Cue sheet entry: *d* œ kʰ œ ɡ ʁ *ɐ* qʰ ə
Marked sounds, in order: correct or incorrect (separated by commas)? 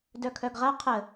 correct, correct